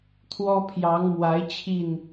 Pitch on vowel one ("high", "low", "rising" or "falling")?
high